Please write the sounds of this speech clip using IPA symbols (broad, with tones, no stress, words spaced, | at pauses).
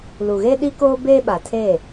lu˨ɣeː˦ɗi˦koː˦ beː˦ɓa˨tʰeː˦˨